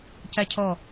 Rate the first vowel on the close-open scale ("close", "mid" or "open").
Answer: open